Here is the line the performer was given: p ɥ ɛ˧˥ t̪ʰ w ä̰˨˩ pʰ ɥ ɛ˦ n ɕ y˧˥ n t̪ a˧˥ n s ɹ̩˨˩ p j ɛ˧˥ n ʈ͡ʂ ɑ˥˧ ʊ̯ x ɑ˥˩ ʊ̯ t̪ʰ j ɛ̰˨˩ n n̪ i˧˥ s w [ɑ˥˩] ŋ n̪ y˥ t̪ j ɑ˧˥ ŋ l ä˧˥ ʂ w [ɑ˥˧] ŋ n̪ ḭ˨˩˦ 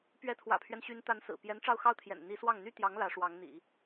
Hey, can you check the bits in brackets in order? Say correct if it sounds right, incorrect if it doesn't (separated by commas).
correct, incorrect